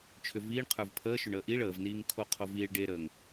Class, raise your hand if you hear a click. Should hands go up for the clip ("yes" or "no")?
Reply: no